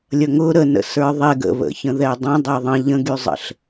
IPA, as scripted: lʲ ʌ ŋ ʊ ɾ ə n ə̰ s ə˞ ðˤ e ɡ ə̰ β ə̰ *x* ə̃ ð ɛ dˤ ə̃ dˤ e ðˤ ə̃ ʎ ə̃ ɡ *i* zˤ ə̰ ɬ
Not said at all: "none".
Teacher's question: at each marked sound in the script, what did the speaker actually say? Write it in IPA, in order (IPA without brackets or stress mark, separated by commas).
ç, y